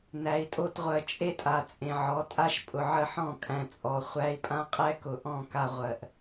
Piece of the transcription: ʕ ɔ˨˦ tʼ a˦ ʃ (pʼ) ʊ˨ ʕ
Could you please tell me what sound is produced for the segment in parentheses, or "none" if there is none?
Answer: pʼ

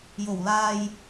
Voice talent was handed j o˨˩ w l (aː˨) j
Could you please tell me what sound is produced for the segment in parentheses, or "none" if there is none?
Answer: aː˨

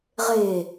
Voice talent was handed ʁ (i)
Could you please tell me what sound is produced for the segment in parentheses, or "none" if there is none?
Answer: e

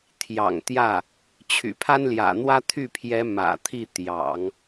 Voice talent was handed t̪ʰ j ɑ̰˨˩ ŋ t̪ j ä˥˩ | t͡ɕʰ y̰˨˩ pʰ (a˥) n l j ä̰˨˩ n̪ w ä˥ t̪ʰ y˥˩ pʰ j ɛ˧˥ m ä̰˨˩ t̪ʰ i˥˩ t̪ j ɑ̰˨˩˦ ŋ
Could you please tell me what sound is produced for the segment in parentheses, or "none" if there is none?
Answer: a˥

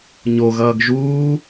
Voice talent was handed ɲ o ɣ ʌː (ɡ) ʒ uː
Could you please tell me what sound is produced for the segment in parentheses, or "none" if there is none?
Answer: ɡ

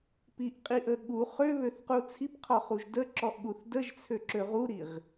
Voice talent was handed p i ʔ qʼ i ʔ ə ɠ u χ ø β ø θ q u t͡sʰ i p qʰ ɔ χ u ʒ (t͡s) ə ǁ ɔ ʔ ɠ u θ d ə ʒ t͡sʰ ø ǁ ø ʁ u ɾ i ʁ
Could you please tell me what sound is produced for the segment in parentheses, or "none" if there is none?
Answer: d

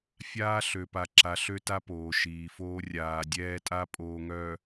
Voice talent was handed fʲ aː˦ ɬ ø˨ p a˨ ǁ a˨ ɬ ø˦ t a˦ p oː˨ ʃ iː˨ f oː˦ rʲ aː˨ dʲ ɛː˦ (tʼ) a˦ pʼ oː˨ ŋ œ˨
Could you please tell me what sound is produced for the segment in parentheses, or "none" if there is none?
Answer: tʼ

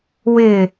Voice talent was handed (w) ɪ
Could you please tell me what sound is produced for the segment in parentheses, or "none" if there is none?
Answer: w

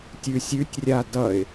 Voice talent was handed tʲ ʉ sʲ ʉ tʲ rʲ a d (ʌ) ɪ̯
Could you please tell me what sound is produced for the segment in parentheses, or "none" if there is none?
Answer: ʌ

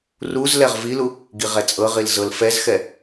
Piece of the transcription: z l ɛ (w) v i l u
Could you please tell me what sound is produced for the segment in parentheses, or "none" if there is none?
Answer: ʁ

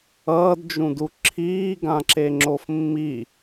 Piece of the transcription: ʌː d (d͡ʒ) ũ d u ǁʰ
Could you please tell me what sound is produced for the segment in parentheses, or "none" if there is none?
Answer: d͡ʒ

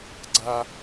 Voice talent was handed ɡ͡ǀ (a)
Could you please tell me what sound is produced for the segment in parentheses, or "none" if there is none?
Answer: a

